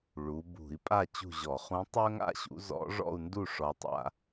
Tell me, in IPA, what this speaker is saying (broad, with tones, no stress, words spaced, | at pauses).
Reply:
ɭu˩˧ bṳ˧˩˧i̯pʼa˥˨ t͡ɕṳ˥˨ʑɔ˧˩˧ χũ˧˥tˤɵ˥ŋa̰˥ɕṵ˧˥ zɔ̰˧˥ʐɔ̰˥˨u̯ndu˥˨ ʂɔ˧˥tˤa̰˥